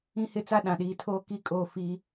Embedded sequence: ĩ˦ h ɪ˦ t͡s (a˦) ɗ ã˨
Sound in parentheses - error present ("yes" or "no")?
no